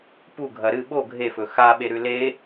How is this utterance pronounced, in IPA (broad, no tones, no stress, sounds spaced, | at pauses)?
p u ɡʱ ɐ ɾ ɨ ɓ o ɡʱ e f ɵ x a ɓ e ɾ ʉ l e